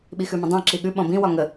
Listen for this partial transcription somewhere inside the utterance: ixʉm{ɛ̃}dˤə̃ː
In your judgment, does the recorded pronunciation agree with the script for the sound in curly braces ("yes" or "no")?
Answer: no